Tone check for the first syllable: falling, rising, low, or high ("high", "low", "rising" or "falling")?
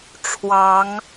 rising